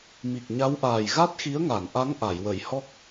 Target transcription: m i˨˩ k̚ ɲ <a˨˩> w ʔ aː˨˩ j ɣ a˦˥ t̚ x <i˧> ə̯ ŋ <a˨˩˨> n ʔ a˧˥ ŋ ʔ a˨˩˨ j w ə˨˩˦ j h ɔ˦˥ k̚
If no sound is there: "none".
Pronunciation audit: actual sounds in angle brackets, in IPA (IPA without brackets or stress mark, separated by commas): a˧˥, i˧˥, a˨˩˨